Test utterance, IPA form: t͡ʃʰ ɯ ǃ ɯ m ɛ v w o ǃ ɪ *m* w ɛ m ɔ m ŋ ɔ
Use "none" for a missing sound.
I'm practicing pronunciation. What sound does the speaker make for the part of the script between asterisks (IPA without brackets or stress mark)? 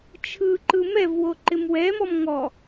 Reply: m